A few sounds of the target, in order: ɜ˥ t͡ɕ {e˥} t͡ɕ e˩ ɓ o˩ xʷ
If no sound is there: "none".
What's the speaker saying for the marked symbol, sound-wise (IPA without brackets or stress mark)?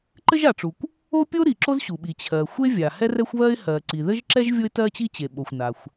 i˥